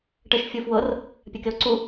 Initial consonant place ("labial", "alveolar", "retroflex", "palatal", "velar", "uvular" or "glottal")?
retroflex